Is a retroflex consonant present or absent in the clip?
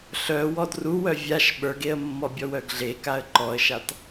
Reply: absent